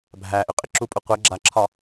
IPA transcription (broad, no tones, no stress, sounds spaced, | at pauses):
bʱ æ ʔ ʏ qʼ ɪ ǁ u pʼ u qʷ ɛ ɡ͡ǁ a ǁʰ ɒ